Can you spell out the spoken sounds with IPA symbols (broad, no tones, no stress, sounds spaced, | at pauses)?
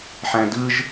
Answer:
ħ æ̃ d ɯ ʒ